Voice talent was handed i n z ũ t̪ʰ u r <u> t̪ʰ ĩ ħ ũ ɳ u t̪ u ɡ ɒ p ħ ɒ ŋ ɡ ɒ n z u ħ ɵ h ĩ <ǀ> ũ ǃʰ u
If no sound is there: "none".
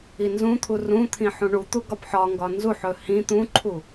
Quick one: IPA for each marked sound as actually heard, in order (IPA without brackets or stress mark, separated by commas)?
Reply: ũ, t̪